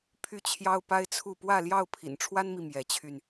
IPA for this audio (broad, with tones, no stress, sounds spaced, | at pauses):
pʰ y˥˨ t͡ɕʰ j ɑ˦ ʊ̯ p a˦ ɪ̯ t͡sʰ u˥˨ p w ä˥˨ l j ɑ˥˨ ʊ̯ pʰ ḭ˨˩ n ʈ͡ʂʰ w a˦ n m i˨ m j ɛ˨˦ t͡ɕʰ y˧ n